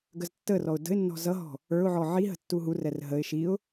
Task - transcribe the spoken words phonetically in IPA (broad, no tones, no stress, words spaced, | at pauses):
ɡəztːərɔʊ̯ də̤ɪ̯nːɔ̤ zʌɦɔ̤ | ə˞ʊ̯ʕɔ ʕi ɦə̤tːuɦurɛr ɦəɪ̯ ʃiʊ̯